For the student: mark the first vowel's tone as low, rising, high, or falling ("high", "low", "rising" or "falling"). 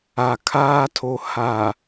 low